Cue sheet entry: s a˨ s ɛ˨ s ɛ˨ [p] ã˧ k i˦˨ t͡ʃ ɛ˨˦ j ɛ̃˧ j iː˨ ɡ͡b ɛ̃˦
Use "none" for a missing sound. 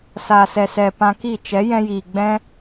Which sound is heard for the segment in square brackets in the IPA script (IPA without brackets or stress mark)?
p